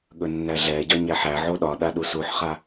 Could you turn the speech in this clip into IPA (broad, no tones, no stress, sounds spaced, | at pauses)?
ɠ ɵ nː æ ɮ ɛ ɟ ɒ ɲ æ ħ æ ʕ o ɗ ɒ ɗ a ɗ u s u ħ χ a